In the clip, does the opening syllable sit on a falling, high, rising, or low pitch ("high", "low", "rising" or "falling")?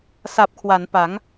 low